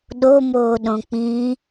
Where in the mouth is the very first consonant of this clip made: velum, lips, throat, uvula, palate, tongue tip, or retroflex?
tongue tip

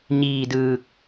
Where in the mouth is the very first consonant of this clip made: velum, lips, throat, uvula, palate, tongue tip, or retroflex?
palate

